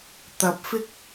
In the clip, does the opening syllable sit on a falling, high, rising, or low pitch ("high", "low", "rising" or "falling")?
rising